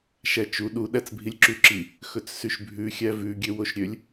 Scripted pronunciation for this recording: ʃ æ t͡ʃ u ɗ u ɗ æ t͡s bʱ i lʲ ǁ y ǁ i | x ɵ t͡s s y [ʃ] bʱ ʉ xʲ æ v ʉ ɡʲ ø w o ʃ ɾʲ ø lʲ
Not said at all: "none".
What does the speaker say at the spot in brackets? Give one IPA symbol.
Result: ʃ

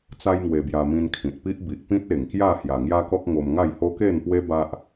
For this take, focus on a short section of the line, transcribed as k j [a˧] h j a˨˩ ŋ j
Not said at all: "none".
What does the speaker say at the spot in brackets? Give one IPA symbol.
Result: a˥˧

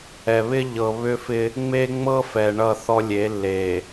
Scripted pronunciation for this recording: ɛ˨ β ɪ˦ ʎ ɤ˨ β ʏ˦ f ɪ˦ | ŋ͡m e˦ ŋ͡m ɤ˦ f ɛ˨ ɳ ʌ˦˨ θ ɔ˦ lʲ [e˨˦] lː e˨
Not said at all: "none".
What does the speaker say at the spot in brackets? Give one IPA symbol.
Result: e˨˦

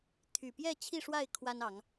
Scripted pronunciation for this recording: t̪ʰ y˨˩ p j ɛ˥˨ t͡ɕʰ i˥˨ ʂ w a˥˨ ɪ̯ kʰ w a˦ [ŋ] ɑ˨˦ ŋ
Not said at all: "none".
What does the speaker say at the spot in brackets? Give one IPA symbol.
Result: n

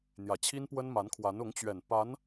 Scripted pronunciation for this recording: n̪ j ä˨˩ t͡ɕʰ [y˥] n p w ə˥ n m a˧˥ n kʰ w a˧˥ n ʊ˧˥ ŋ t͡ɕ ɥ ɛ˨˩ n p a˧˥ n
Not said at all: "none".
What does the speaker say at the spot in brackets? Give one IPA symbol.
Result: i˥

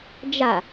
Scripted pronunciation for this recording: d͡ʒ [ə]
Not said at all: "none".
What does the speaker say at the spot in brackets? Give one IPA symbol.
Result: a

